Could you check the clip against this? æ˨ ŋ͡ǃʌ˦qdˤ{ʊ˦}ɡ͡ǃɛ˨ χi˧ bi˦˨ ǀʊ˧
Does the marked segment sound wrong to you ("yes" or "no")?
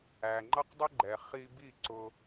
no